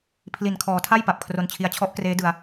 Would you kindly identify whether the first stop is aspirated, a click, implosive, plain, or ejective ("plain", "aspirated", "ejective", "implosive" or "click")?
aspirated